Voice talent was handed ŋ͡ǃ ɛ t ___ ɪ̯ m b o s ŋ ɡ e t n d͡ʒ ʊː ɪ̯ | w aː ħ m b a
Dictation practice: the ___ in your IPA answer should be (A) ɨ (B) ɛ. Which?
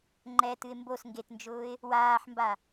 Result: A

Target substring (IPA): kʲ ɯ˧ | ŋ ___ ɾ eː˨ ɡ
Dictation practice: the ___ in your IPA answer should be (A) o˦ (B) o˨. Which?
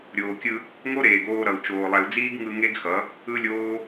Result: A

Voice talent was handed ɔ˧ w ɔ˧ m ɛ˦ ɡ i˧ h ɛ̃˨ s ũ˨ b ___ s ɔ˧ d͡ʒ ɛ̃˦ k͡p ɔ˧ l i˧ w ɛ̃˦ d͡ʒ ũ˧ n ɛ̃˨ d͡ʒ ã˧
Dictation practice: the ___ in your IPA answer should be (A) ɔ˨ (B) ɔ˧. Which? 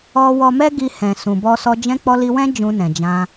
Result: B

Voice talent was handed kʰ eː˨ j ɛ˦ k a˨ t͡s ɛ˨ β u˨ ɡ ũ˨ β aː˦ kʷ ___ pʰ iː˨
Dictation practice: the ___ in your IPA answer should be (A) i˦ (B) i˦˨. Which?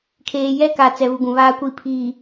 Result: B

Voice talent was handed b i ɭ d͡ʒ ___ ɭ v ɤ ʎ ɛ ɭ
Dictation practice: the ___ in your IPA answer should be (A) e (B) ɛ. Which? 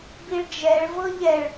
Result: B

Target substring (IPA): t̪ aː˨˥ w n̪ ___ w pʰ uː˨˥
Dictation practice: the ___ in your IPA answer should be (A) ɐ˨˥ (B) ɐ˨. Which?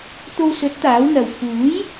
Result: B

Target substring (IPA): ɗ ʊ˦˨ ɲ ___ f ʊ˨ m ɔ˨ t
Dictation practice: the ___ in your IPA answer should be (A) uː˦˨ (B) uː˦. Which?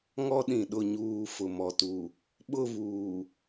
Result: A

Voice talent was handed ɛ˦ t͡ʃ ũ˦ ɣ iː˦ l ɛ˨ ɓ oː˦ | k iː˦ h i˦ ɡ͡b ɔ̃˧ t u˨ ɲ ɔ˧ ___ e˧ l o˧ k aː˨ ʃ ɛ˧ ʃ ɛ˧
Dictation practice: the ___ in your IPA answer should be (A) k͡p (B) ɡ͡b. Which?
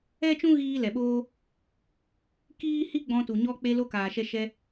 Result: A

